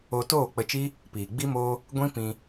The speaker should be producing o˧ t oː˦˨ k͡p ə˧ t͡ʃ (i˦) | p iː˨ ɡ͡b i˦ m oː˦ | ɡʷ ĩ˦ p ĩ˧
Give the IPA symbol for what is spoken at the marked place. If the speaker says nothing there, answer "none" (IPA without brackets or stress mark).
i˦